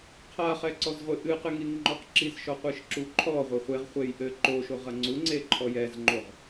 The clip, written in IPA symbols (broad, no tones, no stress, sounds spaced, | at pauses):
qʰ a χ ɛ ǀ ɔ z ʁʷ ɨ ʔ ɨ q ɨ ŋ i ŋ ŋ͡ǃ ɔ q ǁ i z ʃ ɔ qʷ ɨ ʃ ǁ u ǃʰ ɔ ʁʷ ɘ χʷ e ʁ χʷ e j ʔ ɘ ǃ o ʃ o ʁ ɐ ŋ͡ǀ u ŋ͡ǀ e ǃʰ ɔ j ɛ z ŋ͡ǃ o ʁ